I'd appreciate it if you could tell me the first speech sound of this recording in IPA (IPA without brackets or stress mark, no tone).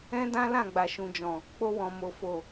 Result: ɛ̃